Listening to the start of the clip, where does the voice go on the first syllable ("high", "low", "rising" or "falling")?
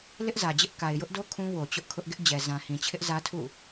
high